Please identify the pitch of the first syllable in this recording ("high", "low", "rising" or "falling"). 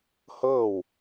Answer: falling